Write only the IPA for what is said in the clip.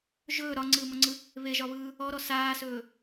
ʒ ɵː ɾ ɒ ŋ͡ǀ ɯː m ɔ ŋ͡ǀ ɯ | β e ʒ ɒ β ɯː | ɔ ɾ ɔ s aː s ɵː

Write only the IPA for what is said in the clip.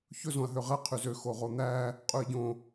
ç ɵ z õ ɐ̯ ɦ ø ʁ ɛ qʰ y z ø x o ʁ o n̪ æ | qʼ ʉ ɐ̯ ɟ õ

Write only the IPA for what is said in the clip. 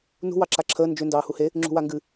n ṳ w ɑ ǁ a ǁʰ əː n d͡ʒ ʏ n d ɑː h u h e | ŋ͡ǁ ṳ w a ŋ ɡ ɨ

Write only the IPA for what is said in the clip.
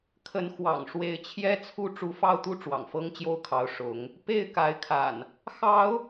kʰ ə˨˦ n x w ɑ̰˨˩ ŋ ʂ w e˨˦ ɪ̯ t͡ɕʰ j ɛ˦ t͡sʰ u˥˨ ʈ͡ʂ u˨˦ f ɑ˥˨ ʊ̯ t̪ u˦ ʈ͡ʂ w ɑ̰˨˩ ŋ f ɤ˦ ŋ t͡ɕ j o˥˨ ʊ̯ kʰ ɑ˨˦ ʊ̯ ʂ ʊ˨˦ ŋ | p e˥˨ ɪ̯ k a˨˦ ɪ̯ kʰ a̰˨˩ n | x ɑ˨˦ ʊ̯

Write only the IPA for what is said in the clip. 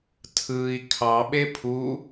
tʰ ɯ i̯ kʰ ɑ ɓ e pʰ u

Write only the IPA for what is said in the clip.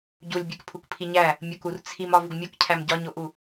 ɟ u lʲ bʲ e k pʰ u k pʰ i ɲ æ | mʲ o k u r t͡sʰ i m ɒ v u ɡ mʲ o k cʰ æ m ɟ ɒ ɲ o ʔ u

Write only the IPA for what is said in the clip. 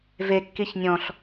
v e kː i ç nʲ ɔ̃ ɬ

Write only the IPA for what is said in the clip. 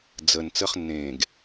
d͡z ə n t͡s ə χ nː ẽː ɡ

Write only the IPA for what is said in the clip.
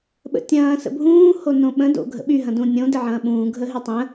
ɓ ə̰ tʲ ɐ̃ː s ə̰ bʱ ũː h o n õ ɓ ə̃ d o̰ ɡʱ ə̰ ɓ y ɦ ɐ̃ d ũ nʲ õ d ɪ ʕ ɐ̃ː ɓ ũː ɡʱ ə ɦ y tˤ ə̃

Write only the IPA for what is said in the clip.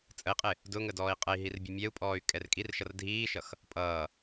t͡sʼ ə i̯ qʼ ɪ | d ʊ ŋ ə d ɔː i̯ qʼ ə i̯ ɦ i r bʲ ə mʲ ɛ u̯ pʼ ɔː y̯ kʼ ɛ r kʼ i r ʃ ʌ r dʱ iː ʃ ʌ x | pʼ ʌː

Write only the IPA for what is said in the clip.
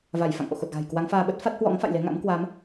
v a˧˩ j f a̰˧˨ ŋ ʔ o̰˧˨ x o˨˩ t̚ ɣ a̤˨˩ j k w a˨˦ ŋ f aː˧ ɓ ə˦˥ t̚ f a˦˥ t̚ h w ɔ̰˧˥ ŋ f a̰˧˨ j l e˨˦ ŋ a̰˧˥ m k w aː˨˦ m

